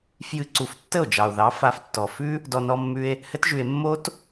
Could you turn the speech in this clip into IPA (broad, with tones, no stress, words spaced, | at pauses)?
fjɨ˧ ǀu˧f tːə˦˨o̯d͡ʒɑ˨o̯ðɑ˨˦ fa˧ftːɔ˨ fʉ˦ | dɔ˧nɔ˧mːʉ˧e̯ | hɘ˦tʒʉ˧e̯ mːo˦t